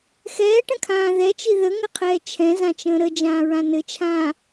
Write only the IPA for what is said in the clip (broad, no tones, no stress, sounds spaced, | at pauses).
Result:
x ɛː ʈ ə̃ kʰ ãː ð ɛ t͡ʃ i ð ə ŋ ɘ qʰ ɛː t͡ʃʰ ɛ̃ z ã t͡ʃ ə̃ː ɾ ə d͡ʒ ãː ɹ ã n ɘ t͡ʃʰ ãː